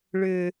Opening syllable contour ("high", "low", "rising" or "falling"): low